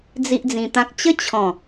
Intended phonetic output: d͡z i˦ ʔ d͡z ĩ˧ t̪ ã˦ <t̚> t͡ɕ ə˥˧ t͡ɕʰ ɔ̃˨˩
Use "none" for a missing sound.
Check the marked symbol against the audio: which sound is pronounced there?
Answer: k̚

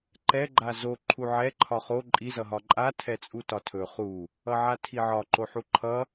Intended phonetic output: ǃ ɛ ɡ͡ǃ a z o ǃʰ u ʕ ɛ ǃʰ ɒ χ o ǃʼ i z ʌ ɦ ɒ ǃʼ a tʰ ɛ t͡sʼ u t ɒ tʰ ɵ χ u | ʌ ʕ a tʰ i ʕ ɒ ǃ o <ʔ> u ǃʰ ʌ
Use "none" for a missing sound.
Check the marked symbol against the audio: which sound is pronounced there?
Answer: ħ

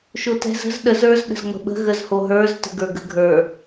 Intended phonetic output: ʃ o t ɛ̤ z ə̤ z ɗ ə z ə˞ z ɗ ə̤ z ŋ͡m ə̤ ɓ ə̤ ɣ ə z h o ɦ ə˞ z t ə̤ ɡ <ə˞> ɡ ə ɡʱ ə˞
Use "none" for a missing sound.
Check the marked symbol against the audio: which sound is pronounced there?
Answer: ə˞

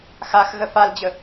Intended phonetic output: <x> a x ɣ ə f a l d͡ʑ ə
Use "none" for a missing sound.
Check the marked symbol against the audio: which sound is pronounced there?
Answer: x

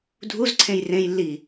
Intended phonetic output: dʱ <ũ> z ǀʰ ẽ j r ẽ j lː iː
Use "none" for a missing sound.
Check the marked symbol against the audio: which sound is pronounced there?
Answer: u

